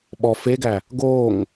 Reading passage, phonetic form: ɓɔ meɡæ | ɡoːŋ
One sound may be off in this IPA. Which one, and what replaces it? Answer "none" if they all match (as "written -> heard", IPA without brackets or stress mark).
m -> f